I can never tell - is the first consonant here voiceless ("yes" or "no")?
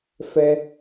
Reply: yes